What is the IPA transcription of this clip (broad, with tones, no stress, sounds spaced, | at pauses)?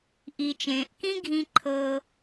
ʔ i˩ t͡ʃ ẽː˩ ʔ k ĩ˥ ɡʱ ĩ˧ ǃʰ ɤ˧